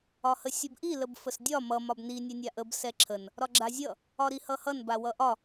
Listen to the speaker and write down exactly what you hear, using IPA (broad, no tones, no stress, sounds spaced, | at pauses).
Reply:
ɒ h ə sʲ ə b ʔ i l ə b f ə s dʲ ɒ m ʌ m ɒ b n i nʲ ɛ nʲ a ʔ ə b s ɛ ǁʰ ə n | ɾ ɒ ɡ͡ǁ a zʲ ʌ | ɒ ɾ i h ʌ h ʌ n b a w ʌ ʔ ɒ